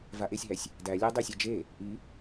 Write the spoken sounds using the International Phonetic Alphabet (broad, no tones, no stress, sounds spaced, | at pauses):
v a ʔ e sʲ ɦ æ sʲ | d æ lʲ æ dˤ e sʲ a d͡ʒ e | ʔ i